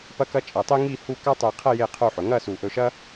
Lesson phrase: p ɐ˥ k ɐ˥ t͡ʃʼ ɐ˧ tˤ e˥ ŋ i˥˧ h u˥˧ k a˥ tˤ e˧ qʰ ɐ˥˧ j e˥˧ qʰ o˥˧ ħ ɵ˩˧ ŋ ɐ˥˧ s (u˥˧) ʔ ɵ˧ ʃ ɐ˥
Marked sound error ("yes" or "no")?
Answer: yes